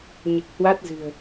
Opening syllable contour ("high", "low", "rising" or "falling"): low